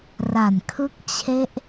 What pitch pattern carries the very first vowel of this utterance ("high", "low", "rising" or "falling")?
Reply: low